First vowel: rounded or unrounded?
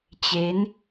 unrounded